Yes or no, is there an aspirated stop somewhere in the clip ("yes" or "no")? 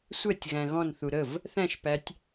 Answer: no